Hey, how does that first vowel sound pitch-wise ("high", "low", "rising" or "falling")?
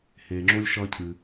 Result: low